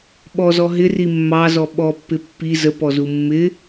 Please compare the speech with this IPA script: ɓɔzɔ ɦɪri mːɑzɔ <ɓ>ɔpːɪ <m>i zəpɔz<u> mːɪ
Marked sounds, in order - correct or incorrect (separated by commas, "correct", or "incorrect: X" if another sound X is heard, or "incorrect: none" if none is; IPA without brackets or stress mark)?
correct, incorrect: pː, correct